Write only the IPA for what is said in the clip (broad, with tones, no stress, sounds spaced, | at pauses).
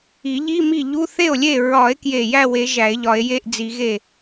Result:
i˨˩˦ ʎ i˧˥˧ m i˥˩ ʎ u˧˥˧ θ e˥˩ o̯ lʲ e˥˩ ɹ ɒ˨˩˦ e̯ k j e˥˩ j æ˥˩ w e˨˩˦ ʒ æ˨˩˦ e̯ ʎ ɒ˨˩˦ e̯ j e˧˥˧ ʔ d͡z i˨˩˦ ɣ e˥˩